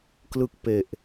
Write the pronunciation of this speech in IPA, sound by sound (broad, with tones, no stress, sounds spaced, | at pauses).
k l ɯ˥˩ k̚ p e˨˩ ʔ